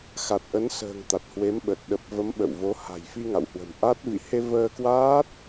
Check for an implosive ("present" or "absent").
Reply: present